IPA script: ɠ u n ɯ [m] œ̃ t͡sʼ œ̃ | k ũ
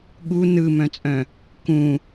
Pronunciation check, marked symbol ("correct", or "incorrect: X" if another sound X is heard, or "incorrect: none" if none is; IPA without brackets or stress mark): correct